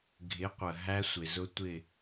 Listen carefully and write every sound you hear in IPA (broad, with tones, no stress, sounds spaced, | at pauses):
ɡʱ ɪ˨˥ qʷ ə˩ ɦ æ˦˥ sʷ ɪ˩ z ʊ˦˥ tʷ ɪ˥˨